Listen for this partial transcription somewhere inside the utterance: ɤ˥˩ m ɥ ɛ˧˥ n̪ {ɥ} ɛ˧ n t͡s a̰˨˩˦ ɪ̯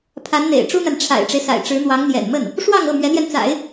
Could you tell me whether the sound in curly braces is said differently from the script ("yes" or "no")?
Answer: yes